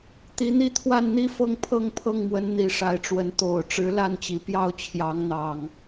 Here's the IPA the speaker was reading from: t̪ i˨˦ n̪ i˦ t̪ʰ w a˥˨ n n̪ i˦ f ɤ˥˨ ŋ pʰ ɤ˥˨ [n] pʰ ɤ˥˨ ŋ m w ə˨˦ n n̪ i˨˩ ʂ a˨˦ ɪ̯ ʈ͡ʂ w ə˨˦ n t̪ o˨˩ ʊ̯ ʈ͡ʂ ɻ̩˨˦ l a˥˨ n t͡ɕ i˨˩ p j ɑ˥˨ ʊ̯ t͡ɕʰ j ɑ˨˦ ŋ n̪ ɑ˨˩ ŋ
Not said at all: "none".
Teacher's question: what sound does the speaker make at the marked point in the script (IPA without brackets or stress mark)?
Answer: ŋ